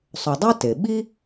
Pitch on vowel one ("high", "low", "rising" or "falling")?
low